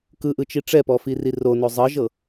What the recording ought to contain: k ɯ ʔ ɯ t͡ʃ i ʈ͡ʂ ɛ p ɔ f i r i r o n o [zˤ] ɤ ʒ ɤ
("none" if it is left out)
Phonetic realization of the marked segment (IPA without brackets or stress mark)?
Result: zˤ